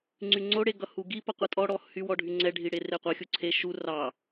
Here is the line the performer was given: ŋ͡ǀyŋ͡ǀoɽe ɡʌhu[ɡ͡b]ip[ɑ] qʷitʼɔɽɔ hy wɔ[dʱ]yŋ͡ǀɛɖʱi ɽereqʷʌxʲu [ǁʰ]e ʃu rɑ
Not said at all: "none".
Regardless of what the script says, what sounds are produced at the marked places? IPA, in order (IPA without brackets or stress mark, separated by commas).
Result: ɡ, ʌ, ɖʱ, ǀʰ